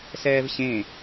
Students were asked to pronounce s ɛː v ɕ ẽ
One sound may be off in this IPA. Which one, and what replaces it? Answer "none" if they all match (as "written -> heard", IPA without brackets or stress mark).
none